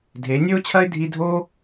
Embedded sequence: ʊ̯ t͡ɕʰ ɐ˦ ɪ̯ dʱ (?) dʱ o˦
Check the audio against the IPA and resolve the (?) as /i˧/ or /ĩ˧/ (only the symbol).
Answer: i˧